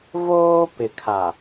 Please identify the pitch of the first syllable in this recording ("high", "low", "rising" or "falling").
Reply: high